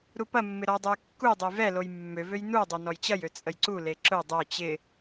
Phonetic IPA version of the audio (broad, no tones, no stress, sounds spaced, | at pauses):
ɾ u p ɐ mː ɪ ɾ ɔ dˤ ɛ j kː u j dˤ ʊ j v ɛ l o j mː ø v ø j n u dˤ œ n ɔ j t͡ɕ ɐ j ø t͡sʼ ə j ǀ u l e ǁ ʊ dˤ œ t͡ɕ ɪ